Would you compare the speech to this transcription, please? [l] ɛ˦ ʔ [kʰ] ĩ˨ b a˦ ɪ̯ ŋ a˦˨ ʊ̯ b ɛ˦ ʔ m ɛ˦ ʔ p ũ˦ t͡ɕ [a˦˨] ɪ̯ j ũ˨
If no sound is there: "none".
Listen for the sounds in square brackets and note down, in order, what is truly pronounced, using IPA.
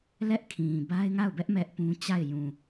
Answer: l, kʰ, a˦˨

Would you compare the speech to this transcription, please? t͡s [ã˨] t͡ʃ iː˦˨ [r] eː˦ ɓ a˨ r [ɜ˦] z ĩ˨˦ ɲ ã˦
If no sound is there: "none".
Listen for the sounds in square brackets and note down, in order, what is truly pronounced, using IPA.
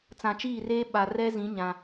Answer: ã˨, r, ɛ˦

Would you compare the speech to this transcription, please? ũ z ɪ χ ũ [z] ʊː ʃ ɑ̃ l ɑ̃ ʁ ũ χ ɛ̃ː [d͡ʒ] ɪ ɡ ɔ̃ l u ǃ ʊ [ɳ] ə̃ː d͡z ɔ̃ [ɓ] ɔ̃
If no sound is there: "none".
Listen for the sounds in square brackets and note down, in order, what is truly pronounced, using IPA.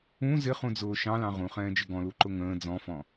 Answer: d͡z, d͡ʒ, ŋ, f

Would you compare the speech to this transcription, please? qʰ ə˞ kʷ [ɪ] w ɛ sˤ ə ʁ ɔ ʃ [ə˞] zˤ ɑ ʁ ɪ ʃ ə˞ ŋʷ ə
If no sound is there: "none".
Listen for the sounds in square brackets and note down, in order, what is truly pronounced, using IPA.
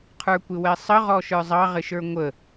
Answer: ɪ, ə˞

